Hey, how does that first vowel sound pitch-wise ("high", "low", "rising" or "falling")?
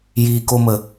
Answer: low